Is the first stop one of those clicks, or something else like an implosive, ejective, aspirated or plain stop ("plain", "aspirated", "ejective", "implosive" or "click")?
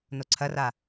click